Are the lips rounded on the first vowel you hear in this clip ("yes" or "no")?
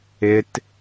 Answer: no